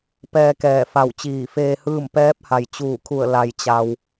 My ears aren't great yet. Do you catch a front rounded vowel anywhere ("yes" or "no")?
no